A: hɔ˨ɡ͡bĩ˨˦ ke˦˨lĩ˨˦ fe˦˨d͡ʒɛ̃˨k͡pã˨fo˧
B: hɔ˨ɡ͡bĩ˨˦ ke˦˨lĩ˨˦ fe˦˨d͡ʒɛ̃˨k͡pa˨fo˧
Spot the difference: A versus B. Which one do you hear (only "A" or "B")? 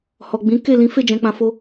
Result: A